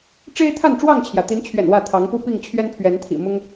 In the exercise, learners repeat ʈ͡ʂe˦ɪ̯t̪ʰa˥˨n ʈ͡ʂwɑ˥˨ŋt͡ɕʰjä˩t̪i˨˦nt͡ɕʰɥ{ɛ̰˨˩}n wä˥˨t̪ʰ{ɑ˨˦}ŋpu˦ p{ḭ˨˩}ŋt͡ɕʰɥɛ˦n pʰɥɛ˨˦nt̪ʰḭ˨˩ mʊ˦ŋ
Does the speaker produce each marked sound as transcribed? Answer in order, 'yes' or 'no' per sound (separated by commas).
yes, yes, no